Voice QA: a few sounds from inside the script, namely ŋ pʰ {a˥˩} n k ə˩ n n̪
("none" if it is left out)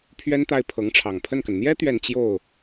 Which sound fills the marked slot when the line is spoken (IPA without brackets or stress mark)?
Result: ə˥˩